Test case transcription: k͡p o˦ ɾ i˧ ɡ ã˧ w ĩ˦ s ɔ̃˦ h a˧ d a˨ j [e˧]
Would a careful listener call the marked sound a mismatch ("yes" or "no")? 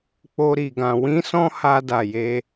no